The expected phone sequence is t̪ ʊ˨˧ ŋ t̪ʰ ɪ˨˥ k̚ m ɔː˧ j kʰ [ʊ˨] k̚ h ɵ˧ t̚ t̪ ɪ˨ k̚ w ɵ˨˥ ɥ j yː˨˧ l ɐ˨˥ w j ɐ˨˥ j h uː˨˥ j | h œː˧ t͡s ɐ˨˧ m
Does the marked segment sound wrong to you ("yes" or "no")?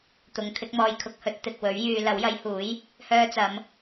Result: no